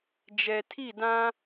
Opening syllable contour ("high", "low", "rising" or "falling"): low